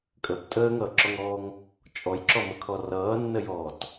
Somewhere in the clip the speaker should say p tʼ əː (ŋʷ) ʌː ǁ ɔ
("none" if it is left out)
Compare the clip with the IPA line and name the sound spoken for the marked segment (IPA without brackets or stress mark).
ŋ